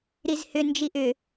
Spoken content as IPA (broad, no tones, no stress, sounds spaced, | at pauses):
ɾ i z h ʏ n d͡ʒ i ʔ ʏ